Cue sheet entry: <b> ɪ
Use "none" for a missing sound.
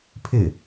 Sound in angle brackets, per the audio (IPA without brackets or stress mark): pʰ